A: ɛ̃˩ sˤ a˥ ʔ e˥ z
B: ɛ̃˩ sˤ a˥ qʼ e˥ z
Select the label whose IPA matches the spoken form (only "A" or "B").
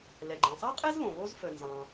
B